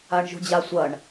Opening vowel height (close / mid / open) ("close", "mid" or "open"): open